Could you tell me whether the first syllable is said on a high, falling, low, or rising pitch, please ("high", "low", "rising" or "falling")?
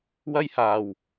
high